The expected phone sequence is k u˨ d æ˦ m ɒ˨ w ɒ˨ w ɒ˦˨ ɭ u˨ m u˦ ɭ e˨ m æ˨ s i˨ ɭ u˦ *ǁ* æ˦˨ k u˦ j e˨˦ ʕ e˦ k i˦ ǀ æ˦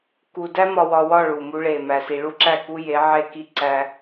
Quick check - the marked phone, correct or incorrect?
correct